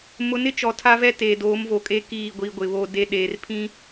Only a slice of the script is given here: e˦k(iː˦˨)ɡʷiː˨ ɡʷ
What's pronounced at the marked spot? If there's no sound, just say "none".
iː˦˨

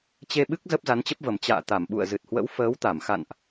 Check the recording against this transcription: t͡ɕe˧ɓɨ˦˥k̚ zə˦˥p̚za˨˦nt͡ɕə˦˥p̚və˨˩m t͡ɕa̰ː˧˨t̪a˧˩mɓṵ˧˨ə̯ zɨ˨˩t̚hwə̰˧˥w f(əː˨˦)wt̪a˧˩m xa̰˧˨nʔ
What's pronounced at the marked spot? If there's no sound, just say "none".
əː˨˦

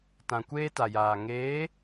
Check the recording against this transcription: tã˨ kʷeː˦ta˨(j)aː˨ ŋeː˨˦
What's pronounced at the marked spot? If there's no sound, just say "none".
j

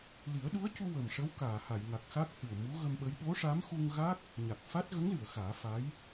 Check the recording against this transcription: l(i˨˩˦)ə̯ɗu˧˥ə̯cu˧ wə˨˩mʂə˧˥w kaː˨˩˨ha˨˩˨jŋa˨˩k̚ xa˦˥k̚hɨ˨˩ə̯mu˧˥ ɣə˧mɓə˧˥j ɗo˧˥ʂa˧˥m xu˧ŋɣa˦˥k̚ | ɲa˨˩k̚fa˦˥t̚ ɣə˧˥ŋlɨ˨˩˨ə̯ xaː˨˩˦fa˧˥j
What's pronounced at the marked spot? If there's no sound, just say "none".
i˨˩˦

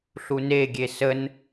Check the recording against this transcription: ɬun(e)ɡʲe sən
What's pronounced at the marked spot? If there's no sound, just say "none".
e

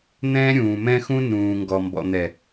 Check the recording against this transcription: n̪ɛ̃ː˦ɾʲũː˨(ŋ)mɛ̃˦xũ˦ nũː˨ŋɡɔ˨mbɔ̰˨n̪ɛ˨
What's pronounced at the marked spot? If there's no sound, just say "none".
none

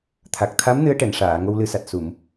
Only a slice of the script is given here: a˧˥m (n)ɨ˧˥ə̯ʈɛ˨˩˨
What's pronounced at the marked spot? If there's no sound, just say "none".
n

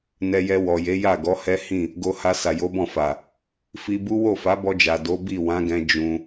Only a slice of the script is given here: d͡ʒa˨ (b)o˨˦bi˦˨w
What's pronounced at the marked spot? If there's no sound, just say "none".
d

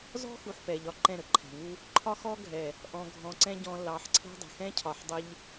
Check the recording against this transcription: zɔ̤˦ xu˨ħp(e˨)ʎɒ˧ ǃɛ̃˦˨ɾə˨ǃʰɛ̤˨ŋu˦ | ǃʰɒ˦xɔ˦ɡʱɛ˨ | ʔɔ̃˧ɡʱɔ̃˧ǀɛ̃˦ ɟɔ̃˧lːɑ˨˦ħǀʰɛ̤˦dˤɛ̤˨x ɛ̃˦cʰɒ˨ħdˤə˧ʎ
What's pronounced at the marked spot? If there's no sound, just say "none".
ɛ˨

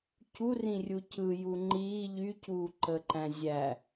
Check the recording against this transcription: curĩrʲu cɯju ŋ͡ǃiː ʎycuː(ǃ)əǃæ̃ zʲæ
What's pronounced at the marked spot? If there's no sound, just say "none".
ǃ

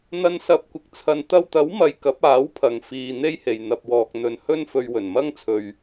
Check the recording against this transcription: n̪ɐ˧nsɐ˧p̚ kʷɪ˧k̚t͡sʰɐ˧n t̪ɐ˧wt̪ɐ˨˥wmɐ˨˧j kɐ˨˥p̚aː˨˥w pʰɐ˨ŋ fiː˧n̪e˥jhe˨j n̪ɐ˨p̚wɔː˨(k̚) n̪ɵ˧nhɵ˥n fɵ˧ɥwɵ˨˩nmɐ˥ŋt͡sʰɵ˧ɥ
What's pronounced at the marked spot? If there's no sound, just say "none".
k̚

